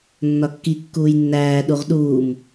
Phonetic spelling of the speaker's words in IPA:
nː ɒ kː i kː uː j nː æː ɗ u ʁ ɗ uː m

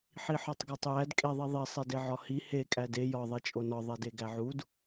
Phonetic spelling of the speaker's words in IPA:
ħ i ħ ɒ tˤ ɡ æ tˤ j æ d kʼ e ðˤ i ðˤ i sˤ e d e ʕ ɒ h i h e kʼ æ d e j ɒ ðˤ e t͡ʃʼ o n ɒ ðˤ e d e ɡ æ ʕ u d

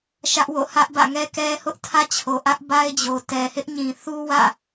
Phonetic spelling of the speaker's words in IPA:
ʃ ä˦ ʔ w o̰˦˨ h ä˦ ʔ b ä̰˦˨ ŋ ɛ˦ k ɛ˦ h ʊ˦ ʔ tʰ ä˦ t͡ɕʰ o˨ ʔ ä˦ ʔ b a˦ ɪ̯ d͡ʑ o˨ t ɛ˨ h ɪ˦ ʔ ɲ ĩ˨ θ u˦ w ä̰˦˨

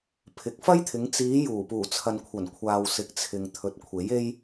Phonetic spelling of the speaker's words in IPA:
pʰ ɪ˨ k̚ f ɐ˥ j t̪ʰ ɪ˨˧ ŋ t͡s iː˨˧ j uː˨˩ p uː˨˩ t͡sʰ ɐ˨ n kʷʰ ɐ˨˩ n kʷʰ aː˨ w s ɪ˨˥ k̚ t͡sʰ ɪ˨ ŋ t̪ʰ ɵ˨˥ t̚ kʷʰ e˨˥ j e˥ j

